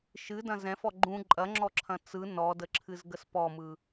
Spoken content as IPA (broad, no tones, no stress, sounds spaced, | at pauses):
ʃ ɨ d ɐ̃ z ɛ̃ f ɔ ɡ͡ǃ ũ ǃʼ ɐ ŋ͡ǁ ɔ ǁʰ ɐ̃ t͡s ɯ n ɔ d ə ǁʰ ɨ z ɡ ə s p ɔ m ɯ